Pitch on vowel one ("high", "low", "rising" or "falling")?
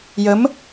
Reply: rising